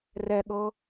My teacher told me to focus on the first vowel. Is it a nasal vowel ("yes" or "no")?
no